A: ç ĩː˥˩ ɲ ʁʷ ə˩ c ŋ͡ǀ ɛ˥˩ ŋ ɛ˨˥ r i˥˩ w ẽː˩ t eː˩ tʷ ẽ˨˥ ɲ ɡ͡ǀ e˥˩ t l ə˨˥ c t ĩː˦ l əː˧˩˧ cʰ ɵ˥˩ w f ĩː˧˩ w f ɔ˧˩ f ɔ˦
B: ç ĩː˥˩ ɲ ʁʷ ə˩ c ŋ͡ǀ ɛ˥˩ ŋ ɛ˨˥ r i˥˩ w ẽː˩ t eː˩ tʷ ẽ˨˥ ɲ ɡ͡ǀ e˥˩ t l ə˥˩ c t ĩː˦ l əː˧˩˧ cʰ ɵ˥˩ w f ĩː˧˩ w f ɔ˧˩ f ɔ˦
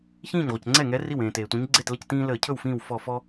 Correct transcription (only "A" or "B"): B